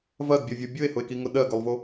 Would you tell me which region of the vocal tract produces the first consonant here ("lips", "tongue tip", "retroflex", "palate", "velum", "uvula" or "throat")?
lips